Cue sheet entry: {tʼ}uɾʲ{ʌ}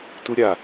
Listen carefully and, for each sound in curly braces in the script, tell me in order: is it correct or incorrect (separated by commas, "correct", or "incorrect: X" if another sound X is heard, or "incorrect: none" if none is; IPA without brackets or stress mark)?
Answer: incorrect: t, incorrect: a